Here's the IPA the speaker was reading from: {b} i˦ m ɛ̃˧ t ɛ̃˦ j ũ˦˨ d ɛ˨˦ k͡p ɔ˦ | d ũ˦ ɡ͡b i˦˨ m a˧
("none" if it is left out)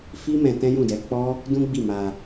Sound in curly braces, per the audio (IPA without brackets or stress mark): f